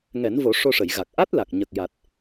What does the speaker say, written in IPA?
ŋ ɛ˨˩˦ n v o˨˩˦ ʂ o˧ ʂ ə˨˩˨ j ɣ a˨˩ k̚ ʔ a˦˥ t̚ l a˨˩ k̚ ɲ ə˨˩ k̚ j a˨˩ t̚

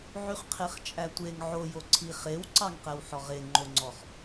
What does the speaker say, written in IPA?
ʕ y χ qʰ e χ t͡ʃʼ æ tʷ e ŋ ʕ o j o ǀʰ i χ e w ǀ ɑ ŋ q ɛ w ħ ɔ ʁ e ŋ͡ǃ o ŋ͡ǀ ɔ χ

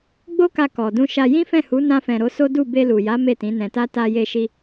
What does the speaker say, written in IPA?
ɡ͡b o˦ k a˧ k ɔ˨ d ũ˧ ʃ a˧ j ĩ˦ f ɛ̃˦˨ h u˨˦ n ã˧ f ɛ̃˨ ɾ o˨˦ s o˦ d u˦˨ b e˧ l u˨ j a˨˦ m e˦˨ t ĩ˨˦ n ɛ̃˧ t a˦ t a˧ j e˧ ʃ i˧

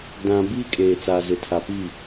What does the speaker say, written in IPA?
d ã˨ b iː˦ kʼ eː˨ t͡s aː˨ z ɪ˨ tʰ a˨ p i˦˨

